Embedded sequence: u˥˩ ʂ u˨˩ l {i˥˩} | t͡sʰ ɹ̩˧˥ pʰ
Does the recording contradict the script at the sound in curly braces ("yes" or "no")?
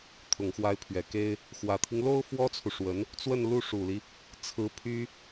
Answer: yes